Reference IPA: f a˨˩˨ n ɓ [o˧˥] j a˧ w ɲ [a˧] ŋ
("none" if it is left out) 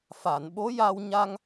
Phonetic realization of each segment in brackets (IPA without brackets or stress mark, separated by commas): o˧˥, a˧